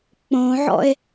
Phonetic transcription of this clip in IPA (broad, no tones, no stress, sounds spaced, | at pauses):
k͡p õ ʕ ɔ̰ e̯